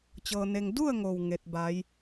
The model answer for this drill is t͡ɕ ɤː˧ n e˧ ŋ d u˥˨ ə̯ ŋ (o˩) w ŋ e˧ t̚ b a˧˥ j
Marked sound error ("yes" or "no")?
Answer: no